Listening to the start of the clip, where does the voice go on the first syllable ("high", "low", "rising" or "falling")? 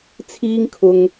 high